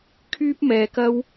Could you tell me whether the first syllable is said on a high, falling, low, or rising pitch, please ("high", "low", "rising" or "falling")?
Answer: high